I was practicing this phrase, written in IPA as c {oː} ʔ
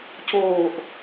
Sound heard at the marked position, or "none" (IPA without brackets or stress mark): oː